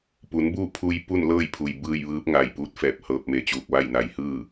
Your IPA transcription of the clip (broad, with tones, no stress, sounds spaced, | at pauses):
p u˩˧ n b u˥˨ pʰ u˧ j p u˥˨ n l ɤː˥˨ j pʰ u˩ j b ɯː˥˨ j ʋ ɯː˧˥ p̚ ŋ a˧˩ j p uː˧˥ t̚ f ɛː˧˩ p̚ h ɤː˧ p̚ m e˧˩ t͡ɕ uː˧˩ k̚ ʋ a˥˨ j n a˩˧ j h ɯː˥˨